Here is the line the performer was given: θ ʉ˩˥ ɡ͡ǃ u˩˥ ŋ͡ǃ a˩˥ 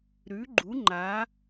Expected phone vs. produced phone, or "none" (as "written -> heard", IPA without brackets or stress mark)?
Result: θ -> ɾ